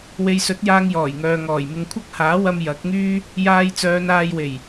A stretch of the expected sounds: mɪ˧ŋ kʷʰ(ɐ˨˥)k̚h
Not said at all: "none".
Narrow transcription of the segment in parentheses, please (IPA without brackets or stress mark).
ɐ˥